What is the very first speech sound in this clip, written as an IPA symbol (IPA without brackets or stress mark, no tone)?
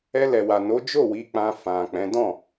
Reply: ɛ